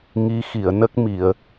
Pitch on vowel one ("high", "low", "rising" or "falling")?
rising